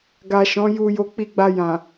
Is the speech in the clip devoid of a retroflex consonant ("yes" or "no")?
yes